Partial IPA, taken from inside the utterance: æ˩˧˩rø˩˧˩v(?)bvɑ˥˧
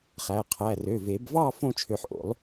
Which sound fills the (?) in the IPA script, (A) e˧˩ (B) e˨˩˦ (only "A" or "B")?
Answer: B